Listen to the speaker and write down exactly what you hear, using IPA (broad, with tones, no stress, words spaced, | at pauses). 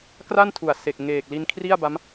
kra˥˩n tʰu˨˩a̯se˨˩k̚ŋeː˨˩k̚li˧n kʰri˥˩a̯ba˦˥m